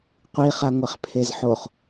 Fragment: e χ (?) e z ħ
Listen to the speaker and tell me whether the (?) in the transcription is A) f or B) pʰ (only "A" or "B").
B